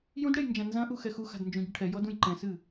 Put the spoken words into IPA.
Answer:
jũdɽej nd͡ʒãnzɐ̃ʔu xɛxuxa̤d nd͡ʒũɟɐʈʰɛjɔ dũjǃɛ̃sɨ

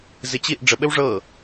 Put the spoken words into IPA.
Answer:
zɪt͡ɕiʔ ɖ͡ʐəɓɘw ʐɤ

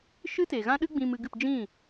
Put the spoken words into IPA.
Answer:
ʃɨ˦te˨ɣã˦ɗɨ˦ ɡ͡bĩ˧mɨ˧ɡɨ˦˨p d͡ʒĩ˦˨

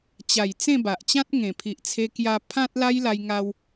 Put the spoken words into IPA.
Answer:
t͡ɕa˨˩j t͡sẽ˥˧ba˨ʔt͡ɕã˦t̚ ŋẽ˨˩pʰi˨ʔt͡sʰe˧kja˧ pʰã˦t̚ la˦jla˧jŋa˧w

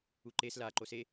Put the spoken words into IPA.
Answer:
uǃes la ǃose

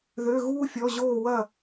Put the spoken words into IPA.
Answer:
ðø˧˥˧ɣuː˥fʲɔ˧˥˧ ʑoː˦˨wɐ˦˨

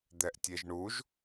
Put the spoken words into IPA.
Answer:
d̪ɛʔtʲeʒɳuʒ

